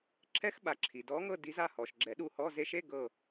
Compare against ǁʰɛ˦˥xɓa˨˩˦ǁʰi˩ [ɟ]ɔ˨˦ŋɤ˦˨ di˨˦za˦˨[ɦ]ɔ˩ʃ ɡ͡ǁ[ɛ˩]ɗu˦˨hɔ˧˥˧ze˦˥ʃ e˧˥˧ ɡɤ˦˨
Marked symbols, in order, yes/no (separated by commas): no, no, no